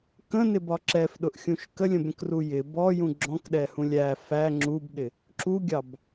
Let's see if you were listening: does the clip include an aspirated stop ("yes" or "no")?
no